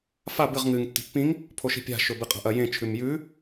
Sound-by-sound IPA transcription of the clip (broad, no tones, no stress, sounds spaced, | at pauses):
f a b ɨ ʁ ŋ ɨ ŋ tː i̤ pː ĩ ŋ | pʰ o ʃ i̤ pʲ a̤ ʃ ɵ b ɨ qʼ a̤ ʔ ɐ j ẽ t͡ʃʰ ʉ m j ʉ